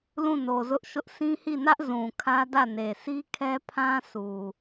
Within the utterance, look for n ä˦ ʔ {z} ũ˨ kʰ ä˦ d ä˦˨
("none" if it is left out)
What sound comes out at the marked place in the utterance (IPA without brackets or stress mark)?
z